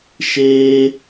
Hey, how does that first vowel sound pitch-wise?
high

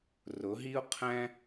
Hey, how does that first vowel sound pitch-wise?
rising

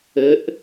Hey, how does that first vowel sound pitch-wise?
rising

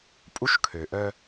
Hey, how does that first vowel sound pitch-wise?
high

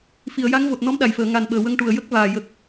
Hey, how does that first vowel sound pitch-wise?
low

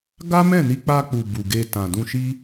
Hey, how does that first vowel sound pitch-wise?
high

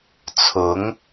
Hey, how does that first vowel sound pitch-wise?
rising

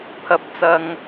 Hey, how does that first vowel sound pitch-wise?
rising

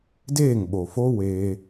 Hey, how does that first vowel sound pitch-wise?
falling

